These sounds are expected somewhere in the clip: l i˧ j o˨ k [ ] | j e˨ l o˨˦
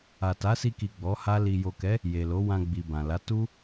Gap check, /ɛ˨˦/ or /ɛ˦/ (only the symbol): ɛ˨˦